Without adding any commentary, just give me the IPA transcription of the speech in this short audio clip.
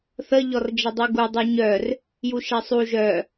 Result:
θ ə ʎ ɔ r d͡ʒ ə dˤ u ɡ u dˤ œ ɲ œ r | j u ʃ ɛ sˤ u ʒ œ

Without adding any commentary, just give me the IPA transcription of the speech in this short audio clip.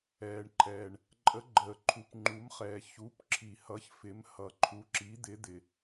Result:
ɛː˩ ɳ ǃʰ ɛː˩ ɳ | ǃʼ ə˩˧ ɡ͡ǃ əː˩ ǃʰ u˩ p ŋ͡ǃ u˩˧ m χ ɛː˩ ç u˩˧ p ǁʰ i˩ h ʌ˩˧ ç f ɪ˩˧ m h ʌ˩ ǃʰ u˩˧ ǁ i˩˧ d̪ ɪ˩˧ d̪ ɪ˩

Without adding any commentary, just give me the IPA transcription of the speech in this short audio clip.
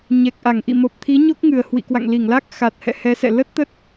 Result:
ɲ ɛ˨˩ k̚ ʔ a˧˩ ŋ ʔ ḭ˧˨ m o˨˩ p̚ t̪ʰ i˨˦ ɲ o˦˥ k̚ ŋ ɨ˨˩ ə̯ h w ḭ˧˨ k w a̰˧˨ ŋ l i˧˩ ŋ l a˦˥ k̚ x a˨˩ t̚ h ɛ̰˧˨ h ɛ˨˦ s ɛ̰˧˨ l ə˦˥ t̚ t̪ ə˦˥ t̚

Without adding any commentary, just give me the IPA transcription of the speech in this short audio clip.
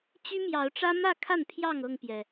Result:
t͡ɕ y˦ m j ɑ˨˦ ʊ̯ ʈ͡ʂ ä˦ m ä˥˨ kʰ a˥˨ n pʰ j ɑ˥˨ ŋ ɤ˥˨ ŋ p j ɛ˩

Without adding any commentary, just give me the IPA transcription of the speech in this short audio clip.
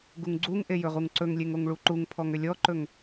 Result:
ɡ u ŋ ɡ͡ǀ u ŋ ʔ e j ɵ ʁ u ŋ ǀ ɵ ŋ lʲ e ŋ o ŋ ɭ u ǃ u ŋ pʰ ɔ ŋ ʏ lʲ ɔ ǃ ɵ ŋ

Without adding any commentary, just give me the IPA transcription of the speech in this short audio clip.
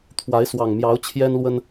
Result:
t̪ʰ w a˨˦ ɪ̯ s w ɑ˨˩ ŋ m j ɑ˨˦ ʊ̯ t͡ɕʰ j ɛ˦ n l w ə˦ n

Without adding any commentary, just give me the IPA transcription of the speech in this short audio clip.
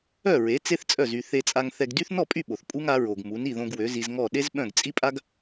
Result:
œ˥˩ ɹ e˩˥ t͡s e˥ θ t͡sʼ œ˥˩ z y˧ θ e˧ t͡sʼ a˧ ŋ θ ɛ˧ ɡ d y˥ θ n ɔ˥˩ pʼ y˥˩ ɓ o˩ θ pʼ u˥ ŋ a˩˥ ɹ o˩ ɡ m u˩˥ n i˥˩ ð õ˧ ɡ w ø˩˥ z i˧ z ŋ ɔ˥˩ ɗ e˥ z ɓ œ̃˥˩ ɡ t͡sʼ i˥ pʼ a˥ ɡ

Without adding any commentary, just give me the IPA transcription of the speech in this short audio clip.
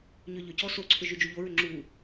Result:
ɲ ʏ ʎ ʏ c ɔ s o ǀʰ ʏ ʒ y d͡ʒ u ʎ o ɹ ʏ ŋ͡ǁ u

